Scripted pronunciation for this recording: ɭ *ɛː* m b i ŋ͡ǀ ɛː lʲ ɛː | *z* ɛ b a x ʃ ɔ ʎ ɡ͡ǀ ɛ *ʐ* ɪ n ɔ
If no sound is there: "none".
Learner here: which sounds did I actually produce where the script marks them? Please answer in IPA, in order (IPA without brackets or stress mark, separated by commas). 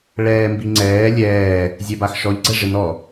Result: ɛː, zʲ, ʐ